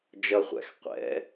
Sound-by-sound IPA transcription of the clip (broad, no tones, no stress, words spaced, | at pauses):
d͡ʒʌχʷæ̰x qʷɛ̰